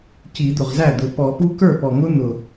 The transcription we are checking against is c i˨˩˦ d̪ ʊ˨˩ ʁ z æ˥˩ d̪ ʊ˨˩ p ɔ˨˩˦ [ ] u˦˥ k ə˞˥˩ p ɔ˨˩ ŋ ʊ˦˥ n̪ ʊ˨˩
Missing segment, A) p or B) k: A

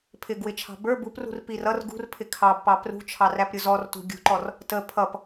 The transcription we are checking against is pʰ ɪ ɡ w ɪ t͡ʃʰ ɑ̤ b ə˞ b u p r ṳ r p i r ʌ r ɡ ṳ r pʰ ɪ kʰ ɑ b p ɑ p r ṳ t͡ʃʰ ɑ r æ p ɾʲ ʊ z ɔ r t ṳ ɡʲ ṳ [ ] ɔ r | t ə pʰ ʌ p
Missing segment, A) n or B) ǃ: B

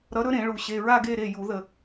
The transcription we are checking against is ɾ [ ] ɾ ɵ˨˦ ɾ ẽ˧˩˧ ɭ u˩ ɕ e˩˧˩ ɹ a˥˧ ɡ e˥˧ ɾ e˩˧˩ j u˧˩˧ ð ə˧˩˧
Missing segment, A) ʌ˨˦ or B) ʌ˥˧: A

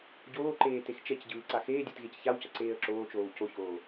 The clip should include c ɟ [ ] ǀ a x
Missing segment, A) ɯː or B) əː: A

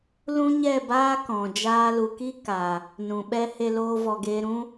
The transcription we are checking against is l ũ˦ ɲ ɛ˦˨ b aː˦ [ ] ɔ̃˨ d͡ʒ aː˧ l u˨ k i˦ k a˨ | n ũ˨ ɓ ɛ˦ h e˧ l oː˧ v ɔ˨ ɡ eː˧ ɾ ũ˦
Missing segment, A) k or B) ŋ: A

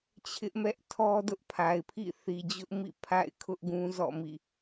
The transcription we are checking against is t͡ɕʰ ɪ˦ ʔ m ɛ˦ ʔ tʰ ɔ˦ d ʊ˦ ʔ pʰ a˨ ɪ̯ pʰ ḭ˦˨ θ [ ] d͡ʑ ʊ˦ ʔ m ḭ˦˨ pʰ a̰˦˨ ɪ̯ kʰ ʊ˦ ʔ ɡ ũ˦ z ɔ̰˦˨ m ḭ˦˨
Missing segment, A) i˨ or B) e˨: A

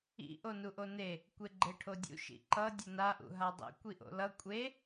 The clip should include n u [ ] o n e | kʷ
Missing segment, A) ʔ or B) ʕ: A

